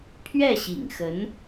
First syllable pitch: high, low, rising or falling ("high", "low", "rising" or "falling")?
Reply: falling